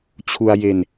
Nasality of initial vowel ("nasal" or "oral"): oral